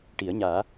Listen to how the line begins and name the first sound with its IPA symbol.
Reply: ʈ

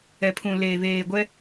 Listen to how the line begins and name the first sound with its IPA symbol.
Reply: ɛ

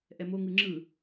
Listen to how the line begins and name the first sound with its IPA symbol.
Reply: ʔ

